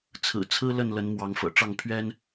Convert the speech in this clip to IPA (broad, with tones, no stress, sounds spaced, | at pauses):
t͡sʰ ɹ̩˨˩ t͡sʰ ɹ̩˦ l ə˥˨ n l ə˨˦ n m w ɑ˨˦ ŋ f ɤ̰˨˩ ʈ͡ʂ ɑ˥˨ ŋ pʰ ɥ ɛ˦ n